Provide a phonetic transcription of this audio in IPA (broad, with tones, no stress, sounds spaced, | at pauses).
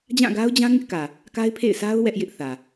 d͡ʑ ã˦˨ ɡ a˦ ʊ̯ d͡ʑ ã˦ ŋ ɪ˦ ʔ k ä˨ | k a˦ ɪ̯ pʰ ḛ˦˨ ɪ̯ s a˦ ʊ̯ w ɛ˦ ʔ j ɪ˦ ʔ θ ä˨